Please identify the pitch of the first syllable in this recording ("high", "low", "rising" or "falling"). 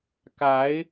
rising